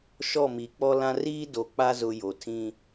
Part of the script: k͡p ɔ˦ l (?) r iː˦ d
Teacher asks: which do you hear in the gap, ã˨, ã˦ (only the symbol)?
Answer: ã˦